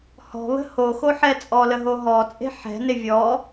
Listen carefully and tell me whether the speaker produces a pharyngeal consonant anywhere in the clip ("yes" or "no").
yes